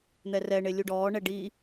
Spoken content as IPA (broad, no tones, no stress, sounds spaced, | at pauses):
n̪ ɛ r ɛ ɳ e lʲ u ɖ ɔː ɳ ɛ ɖ i